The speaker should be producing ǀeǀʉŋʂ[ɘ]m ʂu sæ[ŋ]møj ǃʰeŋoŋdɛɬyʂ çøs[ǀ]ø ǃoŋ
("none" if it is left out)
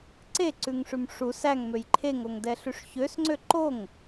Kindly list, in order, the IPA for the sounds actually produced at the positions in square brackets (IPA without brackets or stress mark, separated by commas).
ʉ, ŋ, ŋ͡ǀ